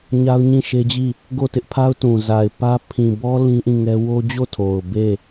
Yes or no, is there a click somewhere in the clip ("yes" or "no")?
no